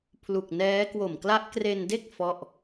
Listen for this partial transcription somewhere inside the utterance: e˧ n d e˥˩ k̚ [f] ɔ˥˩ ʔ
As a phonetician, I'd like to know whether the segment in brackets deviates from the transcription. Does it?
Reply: no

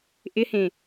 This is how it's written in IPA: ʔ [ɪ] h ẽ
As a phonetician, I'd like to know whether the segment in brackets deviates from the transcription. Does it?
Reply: no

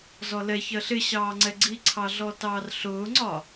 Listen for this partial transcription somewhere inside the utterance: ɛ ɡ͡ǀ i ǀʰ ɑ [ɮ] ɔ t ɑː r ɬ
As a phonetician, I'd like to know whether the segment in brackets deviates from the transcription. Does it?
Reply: no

